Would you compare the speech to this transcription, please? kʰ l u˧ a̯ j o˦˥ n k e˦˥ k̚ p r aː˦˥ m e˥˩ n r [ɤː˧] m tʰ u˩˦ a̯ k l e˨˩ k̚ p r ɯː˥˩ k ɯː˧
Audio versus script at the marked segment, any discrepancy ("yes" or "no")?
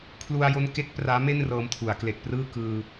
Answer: no